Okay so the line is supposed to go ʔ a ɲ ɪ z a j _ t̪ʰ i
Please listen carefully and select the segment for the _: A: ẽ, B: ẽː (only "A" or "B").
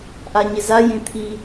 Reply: A